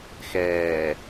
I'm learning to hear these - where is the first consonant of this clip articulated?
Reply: velum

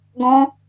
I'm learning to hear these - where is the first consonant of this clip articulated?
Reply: velum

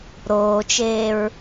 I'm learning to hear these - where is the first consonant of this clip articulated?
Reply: tongue tip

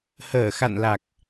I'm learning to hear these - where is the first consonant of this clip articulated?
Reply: throat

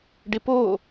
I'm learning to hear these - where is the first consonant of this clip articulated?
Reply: retroflex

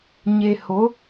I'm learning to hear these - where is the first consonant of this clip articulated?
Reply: palate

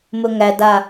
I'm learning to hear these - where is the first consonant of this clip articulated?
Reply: lips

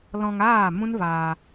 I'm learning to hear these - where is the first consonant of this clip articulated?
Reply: tongue tip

